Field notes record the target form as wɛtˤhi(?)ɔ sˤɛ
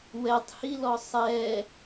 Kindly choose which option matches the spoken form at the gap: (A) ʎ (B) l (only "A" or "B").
B